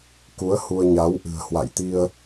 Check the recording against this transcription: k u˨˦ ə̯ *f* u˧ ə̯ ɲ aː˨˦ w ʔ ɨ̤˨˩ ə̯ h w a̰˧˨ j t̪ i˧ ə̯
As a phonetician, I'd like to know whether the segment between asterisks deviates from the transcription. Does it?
yes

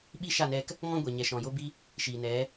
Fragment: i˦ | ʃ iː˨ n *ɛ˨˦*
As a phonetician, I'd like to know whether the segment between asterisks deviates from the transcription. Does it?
no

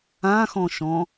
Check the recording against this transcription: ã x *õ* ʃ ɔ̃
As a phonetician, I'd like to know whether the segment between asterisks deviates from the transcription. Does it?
yes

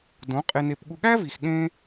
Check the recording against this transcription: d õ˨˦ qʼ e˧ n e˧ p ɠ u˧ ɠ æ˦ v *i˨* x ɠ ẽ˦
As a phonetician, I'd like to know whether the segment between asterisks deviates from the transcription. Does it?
no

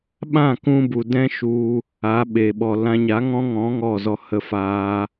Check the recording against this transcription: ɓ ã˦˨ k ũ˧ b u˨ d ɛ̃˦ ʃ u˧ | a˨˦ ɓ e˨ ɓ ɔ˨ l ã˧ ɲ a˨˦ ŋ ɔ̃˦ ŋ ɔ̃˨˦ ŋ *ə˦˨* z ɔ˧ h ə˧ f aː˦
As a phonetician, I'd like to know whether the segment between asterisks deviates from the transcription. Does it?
yes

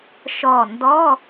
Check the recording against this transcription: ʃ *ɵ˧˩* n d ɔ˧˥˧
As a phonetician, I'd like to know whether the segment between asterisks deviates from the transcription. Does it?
yes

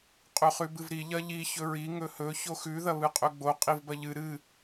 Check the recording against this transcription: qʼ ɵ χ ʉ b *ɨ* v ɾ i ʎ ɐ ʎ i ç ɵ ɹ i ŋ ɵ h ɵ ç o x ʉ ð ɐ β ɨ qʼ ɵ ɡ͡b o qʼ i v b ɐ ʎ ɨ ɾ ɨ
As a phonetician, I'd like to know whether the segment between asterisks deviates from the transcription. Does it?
no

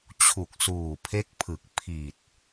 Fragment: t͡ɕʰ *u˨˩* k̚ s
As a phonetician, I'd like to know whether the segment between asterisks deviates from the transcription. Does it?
no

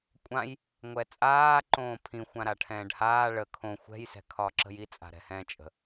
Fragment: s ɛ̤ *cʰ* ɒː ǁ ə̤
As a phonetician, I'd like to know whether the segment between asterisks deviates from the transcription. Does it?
yes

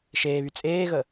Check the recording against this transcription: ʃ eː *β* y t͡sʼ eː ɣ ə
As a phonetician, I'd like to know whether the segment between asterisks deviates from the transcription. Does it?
no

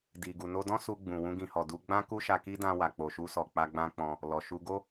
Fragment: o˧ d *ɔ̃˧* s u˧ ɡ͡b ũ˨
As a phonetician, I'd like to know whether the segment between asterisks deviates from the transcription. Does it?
yes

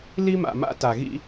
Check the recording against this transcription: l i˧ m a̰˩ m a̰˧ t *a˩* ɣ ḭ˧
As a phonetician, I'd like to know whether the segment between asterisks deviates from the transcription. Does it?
no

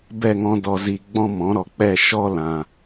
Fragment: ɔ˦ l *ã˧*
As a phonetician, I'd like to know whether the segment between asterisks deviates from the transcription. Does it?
yes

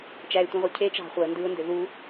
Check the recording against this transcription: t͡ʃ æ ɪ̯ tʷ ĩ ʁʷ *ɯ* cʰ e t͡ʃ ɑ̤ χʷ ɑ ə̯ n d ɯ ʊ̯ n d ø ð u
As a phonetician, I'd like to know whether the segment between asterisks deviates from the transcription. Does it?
no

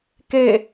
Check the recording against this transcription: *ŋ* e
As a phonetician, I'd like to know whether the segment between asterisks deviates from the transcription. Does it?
yes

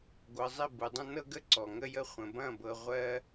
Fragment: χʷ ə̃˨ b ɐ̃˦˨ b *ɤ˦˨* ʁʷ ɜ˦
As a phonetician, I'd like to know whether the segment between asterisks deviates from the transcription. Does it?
yes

